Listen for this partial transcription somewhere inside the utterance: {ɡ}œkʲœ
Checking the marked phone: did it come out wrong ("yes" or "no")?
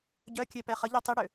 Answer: yes